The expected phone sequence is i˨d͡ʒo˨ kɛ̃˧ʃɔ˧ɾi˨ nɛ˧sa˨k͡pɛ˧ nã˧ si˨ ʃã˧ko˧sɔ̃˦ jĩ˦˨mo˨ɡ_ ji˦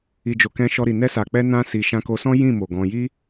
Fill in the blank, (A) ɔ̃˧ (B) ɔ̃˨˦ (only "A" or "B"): A